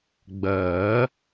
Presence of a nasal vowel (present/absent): absent